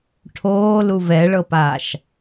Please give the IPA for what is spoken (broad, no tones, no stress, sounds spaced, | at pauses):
ʈʰ oː l u v ɛ ɭ ɤ p a ʃ